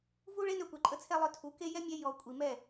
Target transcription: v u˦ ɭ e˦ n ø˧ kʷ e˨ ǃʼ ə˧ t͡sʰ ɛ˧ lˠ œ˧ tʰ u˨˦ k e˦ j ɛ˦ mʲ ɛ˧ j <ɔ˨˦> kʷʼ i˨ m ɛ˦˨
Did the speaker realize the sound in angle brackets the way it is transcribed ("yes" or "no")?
no